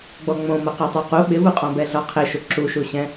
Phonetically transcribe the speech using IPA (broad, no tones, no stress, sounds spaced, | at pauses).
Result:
ɡ͡b ɔ ŋ͡m õ m ʊ q e tˤ o q u ɓ ɪ v u qʼ ɔ̃ b ɛ ɮ ɔ qʰ e ʃ ʊ ǁ u ʃ u ɕ ɛ̃